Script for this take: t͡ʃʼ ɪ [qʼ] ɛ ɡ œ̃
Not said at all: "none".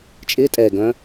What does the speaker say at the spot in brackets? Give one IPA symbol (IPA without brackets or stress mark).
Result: tʼ